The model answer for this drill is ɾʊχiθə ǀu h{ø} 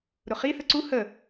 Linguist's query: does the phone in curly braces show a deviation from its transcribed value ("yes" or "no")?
yes